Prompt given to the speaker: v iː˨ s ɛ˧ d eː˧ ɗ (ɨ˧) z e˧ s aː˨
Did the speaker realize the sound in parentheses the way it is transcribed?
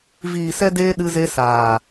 yes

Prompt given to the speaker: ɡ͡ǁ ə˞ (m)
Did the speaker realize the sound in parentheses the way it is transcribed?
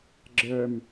yes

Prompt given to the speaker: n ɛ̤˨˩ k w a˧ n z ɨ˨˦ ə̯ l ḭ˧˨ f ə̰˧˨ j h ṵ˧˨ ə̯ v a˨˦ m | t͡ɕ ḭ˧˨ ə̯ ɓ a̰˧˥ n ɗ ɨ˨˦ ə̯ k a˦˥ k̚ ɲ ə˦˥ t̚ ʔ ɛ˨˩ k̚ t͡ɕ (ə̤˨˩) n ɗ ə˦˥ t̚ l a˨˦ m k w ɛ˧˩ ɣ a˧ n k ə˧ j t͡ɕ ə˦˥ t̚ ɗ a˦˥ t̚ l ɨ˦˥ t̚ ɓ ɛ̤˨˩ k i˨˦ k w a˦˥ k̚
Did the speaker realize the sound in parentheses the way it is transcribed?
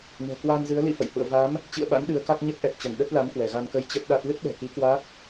no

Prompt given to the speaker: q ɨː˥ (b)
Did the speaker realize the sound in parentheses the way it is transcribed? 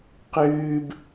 yes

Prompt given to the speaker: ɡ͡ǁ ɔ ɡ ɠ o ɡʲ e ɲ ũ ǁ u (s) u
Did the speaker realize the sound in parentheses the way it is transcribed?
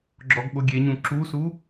yes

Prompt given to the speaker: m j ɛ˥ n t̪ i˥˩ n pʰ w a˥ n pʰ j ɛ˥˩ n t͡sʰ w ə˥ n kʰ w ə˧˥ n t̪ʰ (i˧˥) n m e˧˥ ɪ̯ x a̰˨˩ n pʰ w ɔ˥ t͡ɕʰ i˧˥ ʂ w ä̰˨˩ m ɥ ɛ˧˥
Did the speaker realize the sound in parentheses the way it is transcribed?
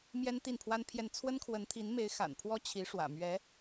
yes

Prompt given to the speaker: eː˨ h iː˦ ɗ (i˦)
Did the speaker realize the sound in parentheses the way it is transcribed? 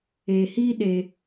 no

